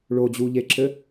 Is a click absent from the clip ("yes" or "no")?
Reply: no